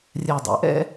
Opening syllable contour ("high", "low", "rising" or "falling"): low